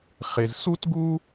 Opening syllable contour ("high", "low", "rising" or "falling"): low